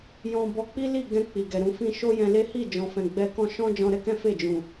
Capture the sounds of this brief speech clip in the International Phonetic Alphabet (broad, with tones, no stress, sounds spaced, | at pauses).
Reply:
j ɔ̃˧ b ɔ˧ k͡p i˦ l i˦˨ ɡ ɛ̃˧ k͡p i˨ ɡ ɛ˨ ɾ ũ˧ f ĩ˦ ʃ o˦ j ɛ̃˧ l e˦ h i˦˨ d͡ʒ ɔ̃˨ f ɛ̃˨ ɡ͡b ɛ˧ k ɔ̃˦ ʃ ɔ̃˦ d͡ʒ ɔ̃˧ ɾ ɛ˦ k ɛ̃˦ f e˦˨ d͡ʒ ũ˨